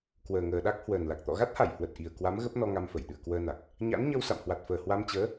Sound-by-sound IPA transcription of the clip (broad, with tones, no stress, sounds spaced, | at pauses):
k w əː˨˩ ŋ əː˨˩ ɗ a˦˥ k̚ h w əː˨˩ n l a˨˩ k̚ t̪ ɔ̰˧˨ ɣ a˦˥ t̚ h a˧˩ j h w ə˨˩ t̚ ʔ i˨˩ ə̯ k w a˨˦ m ɣ ə˦˥ p̚ n ɔ˧ ŋ a˧ m f ə˧˩ j ɗ ɨ̰˧˨ ə̯ k w əː˧ n a˨˩ k̚ | ɲ a̰˧˥ n ɲ ə˧ w s a̰˧˨ m h w a˨˩ t̚ f əː˨˩ h w a˧ m t͡ɕ əː˨˦